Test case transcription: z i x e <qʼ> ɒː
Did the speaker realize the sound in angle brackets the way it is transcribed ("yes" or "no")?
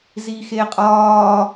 yes